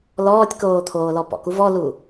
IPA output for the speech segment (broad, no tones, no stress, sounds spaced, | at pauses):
l ɔː tʲ k oː t̪ʰ oː l ɔ p ɔ̰ k u v ɔ l u